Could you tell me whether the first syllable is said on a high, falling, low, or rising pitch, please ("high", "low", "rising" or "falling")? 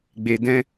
low